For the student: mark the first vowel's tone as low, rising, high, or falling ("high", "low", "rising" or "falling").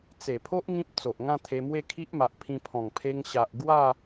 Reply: low